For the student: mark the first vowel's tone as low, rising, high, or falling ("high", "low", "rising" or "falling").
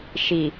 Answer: low